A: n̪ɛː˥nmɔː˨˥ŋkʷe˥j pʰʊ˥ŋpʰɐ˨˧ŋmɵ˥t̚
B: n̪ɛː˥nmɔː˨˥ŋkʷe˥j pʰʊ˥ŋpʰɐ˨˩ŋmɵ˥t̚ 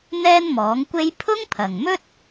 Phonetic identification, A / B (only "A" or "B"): B